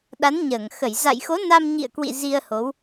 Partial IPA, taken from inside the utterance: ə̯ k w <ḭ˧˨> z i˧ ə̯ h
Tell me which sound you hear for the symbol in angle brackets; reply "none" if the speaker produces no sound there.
ḭ˧˨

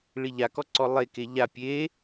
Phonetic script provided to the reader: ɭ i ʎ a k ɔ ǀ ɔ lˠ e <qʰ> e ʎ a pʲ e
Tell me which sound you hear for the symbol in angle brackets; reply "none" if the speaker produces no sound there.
k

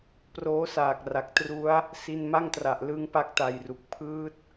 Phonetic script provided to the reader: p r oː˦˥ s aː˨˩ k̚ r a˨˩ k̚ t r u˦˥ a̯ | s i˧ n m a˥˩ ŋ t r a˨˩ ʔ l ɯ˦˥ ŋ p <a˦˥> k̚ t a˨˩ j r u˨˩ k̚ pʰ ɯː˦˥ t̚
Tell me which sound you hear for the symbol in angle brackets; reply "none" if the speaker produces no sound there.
a˦˥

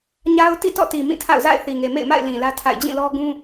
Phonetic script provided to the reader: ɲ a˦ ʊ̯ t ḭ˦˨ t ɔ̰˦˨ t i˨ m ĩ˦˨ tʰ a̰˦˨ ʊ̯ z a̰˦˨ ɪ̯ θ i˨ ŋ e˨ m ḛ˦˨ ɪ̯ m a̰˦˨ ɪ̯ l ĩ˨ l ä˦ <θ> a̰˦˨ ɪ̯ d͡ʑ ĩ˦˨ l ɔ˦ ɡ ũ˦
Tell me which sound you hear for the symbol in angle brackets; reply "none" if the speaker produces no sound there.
tʰ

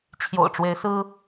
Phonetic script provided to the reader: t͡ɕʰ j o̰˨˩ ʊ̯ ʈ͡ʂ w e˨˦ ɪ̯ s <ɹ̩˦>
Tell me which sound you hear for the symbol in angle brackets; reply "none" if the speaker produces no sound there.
ɹ̩˦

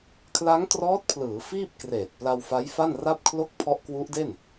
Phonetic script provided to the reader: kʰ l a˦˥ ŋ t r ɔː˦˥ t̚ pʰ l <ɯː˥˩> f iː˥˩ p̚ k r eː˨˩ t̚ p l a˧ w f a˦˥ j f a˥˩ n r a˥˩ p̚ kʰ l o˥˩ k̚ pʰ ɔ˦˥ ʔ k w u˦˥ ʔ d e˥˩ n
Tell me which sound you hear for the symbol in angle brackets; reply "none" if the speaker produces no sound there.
ɯː˩˦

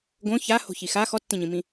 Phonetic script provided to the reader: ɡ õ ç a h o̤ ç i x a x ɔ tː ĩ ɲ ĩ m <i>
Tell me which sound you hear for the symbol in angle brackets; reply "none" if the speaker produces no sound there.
ĩ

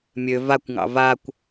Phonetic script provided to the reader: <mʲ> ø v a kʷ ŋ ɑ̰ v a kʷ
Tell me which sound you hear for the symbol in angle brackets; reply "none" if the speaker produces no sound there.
mʲ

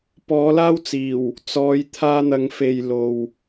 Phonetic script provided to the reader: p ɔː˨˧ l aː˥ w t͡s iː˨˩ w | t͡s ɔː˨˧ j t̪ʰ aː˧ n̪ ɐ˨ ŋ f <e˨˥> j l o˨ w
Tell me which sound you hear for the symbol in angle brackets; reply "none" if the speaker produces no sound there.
e˨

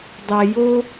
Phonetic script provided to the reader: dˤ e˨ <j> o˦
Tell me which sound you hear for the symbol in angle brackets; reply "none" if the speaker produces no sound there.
j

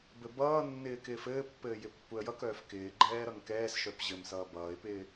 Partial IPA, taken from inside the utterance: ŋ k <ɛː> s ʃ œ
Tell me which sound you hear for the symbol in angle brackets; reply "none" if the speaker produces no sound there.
ɛː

